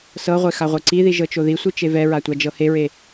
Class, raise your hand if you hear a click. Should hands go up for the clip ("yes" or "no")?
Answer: yes